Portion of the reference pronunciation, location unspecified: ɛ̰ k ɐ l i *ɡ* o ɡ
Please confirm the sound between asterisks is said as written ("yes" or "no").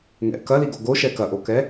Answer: yes